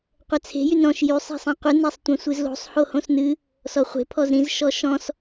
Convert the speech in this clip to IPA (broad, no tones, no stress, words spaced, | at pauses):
qʷɛt͡sʰe̤ jynɾɔ̃ʃ jy sˤe̤sˤĩqʷɨ nɛsˤtʷɛ̃sʷɨzlo̤sˤ hohõsnɨ | sɔχʷe̤ pʰɔzɾĩz ʃɔʃɔ̃s